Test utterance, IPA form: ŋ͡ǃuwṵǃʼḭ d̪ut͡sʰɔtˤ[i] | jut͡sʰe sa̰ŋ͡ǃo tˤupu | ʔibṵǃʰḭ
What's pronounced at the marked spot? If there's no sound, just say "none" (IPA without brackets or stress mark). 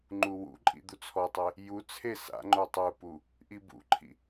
e